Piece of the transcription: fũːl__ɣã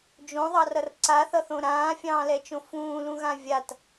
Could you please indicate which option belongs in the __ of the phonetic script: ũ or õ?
ũ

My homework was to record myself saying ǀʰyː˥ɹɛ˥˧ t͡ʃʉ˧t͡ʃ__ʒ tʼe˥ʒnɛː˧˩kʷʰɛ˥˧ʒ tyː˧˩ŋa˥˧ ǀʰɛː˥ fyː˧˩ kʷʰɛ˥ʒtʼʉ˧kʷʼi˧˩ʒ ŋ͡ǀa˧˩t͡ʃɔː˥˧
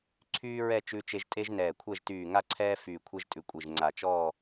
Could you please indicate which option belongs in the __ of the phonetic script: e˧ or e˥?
e˧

